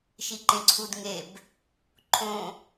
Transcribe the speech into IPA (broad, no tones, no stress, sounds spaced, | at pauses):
ʃ i ǃ ẽ ǀʰ u d ŋ e b | ǃʰ õ